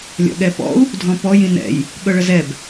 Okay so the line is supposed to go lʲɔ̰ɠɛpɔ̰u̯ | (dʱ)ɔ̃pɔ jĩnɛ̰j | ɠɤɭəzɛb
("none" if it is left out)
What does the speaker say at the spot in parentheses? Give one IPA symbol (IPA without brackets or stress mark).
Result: dʱ